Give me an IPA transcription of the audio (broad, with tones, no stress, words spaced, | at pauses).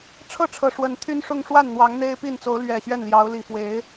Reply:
ʈ͡ʂʰɤ˥˨ʈ͡ʂʰɤ˨˩ ʂwə˨˦nt̪ʰy˦nʂʊ˦ŋ ʂwa˥˨nn̪wɑ˨˦ŋ n̪e˦ɪ̯ pi˥˨n t͡so˨˦ʊ̯ lɥɛ˨˩ ɕɥɛ˥˨nljɑ˨˦ʊ̯li˨˩ fwe˨˦ɪ̯